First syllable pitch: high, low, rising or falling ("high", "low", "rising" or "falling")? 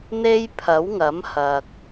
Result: high